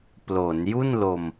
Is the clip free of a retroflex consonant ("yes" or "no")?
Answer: yes